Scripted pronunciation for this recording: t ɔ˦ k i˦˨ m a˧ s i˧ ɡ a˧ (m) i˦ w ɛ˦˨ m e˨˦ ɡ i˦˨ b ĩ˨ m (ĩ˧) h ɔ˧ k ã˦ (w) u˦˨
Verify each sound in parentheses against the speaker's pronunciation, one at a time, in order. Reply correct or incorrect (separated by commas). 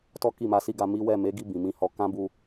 correct, correct, incorrect